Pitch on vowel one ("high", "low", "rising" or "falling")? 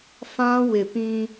high